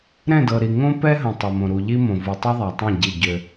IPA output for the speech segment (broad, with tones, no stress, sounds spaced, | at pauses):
ɾ ɛ̃˦˨ d ɤ˨ ɾ i˨ ŋ õ˦ p ɛ˦ ɦ ə̃˨ tˤ ɤ˨ m õ˨ ɾ u˨ ʎ i˦ m õ˨ v u˨ tˤ ɤ˦ ðˤ a˨ tˤ ɛ̃˦˨ ɟ i˦˨ ɟ ø˦